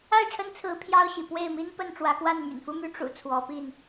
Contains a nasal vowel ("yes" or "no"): no